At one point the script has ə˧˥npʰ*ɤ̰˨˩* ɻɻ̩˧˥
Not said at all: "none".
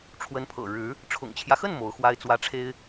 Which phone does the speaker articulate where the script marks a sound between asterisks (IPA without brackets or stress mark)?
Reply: ɤ̰˨˩